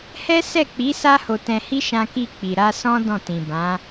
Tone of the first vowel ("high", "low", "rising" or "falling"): high